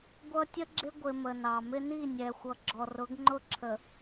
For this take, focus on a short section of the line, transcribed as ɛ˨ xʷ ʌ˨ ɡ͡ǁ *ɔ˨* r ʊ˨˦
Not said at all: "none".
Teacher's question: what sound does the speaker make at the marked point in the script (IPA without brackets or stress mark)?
ɔ˨